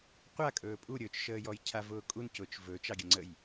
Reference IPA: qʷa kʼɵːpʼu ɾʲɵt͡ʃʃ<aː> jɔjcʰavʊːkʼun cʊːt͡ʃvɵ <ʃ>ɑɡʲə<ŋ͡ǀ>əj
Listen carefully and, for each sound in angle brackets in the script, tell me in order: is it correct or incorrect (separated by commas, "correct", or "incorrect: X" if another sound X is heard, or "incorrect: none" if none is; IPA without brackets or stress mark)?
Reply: incorrect: əː, incorrect: t͡ʃ, correct